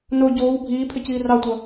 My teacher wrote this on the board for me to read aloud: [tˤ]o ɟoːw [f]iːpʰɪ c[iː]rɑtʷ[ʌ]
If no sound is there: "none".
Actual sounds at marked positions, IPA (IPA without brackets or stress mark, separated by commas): n, bʱ, iː, ʌ